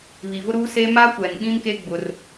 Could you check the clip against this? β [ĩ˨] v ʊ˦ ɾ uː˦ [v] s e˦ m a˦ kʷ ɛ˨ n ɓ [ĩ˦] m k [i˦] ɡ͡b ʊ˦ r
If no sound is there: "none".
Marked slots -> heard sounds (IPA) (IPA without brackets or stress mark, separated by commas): i˨, none, ĩ˦, e˦